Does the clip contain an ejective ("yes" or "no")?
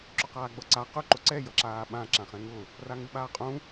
yes